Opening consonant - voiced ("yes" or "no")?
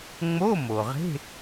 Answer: yes